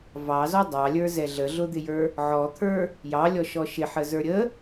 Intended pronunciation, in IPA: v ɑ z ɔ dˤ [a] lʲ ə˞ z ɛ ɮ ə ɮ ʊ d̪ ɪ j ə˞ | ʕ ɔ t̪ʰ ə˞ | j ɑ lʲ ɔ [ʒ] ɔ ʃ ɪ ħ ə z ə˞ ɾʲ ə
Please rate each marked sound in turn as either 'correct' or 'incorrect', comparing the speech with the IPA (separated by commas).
incorrect, incorrect